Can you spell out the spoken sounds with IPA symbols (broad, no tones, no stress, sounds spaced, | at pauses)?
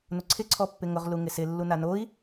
n ʊ ǀʰ ɪ ǀʰ ɔ pː ɪ ŋ ʊ ʁ l u ŋ ɪ s ɪ lː u n a n o i̯